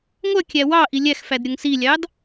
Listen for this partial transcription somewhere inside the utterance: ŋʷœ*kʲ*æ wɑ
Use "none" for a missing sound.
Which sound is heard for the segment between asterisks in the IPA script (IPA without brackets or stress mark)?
kʲ